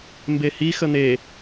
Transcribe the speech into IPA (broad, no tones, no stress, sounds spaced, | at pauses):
m b e h i x ə n̪ e